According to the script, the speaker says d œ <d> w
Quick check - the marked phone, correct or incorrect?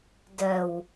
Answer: incorrect